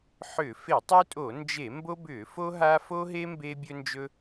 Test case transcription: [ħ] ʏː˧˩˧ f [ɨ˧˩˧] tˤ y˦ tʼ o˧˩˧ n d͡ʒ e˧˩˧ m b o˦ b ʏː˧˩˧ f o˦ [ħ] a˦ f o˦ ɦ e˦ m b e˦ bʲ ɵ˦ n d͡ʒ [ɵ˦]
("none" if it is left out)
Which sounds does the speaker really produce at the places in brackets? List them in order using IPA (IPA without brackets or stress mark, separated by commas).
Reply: ħ, e˧˩˧, ɦ, ɵ˦